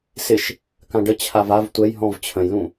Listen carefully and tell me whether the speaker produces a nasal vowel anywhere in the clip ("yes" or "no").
yes